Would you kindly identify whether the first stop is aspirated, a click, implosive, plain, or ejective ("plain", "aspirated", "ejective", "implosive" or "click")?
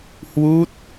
plain